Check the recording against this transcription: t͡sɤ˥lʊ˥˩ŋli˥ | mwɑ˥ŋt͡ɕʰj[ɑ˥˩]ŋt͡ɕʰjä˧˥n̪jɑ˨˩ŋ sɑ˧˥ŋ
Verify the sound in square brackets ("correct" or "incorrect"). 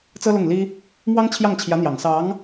correct